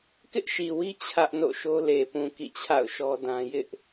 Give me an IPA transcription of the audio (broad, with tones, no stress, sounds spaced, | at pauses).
k ɪ˦ ʔ ʃ i˨ w i˦ t͡ɕʰ ä˦ ʔ n o̰˦˨ ʃ o˦ l e˨ p ũ˨ k ḭ˦˨ t͡ɕʰ a̰˦˨ ʊ̯ ʃ ɔ˦ d ã˦ j ɪ˦ ʔ